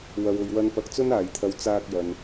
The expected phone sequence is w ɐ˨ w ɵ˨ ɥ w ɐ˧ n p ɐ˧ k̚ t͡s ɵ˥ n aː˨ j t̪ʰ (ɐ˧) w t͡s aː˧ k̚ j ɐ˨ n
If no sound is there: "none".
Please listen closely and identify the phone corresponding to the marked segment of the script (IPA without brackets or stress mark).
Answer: ɐ˧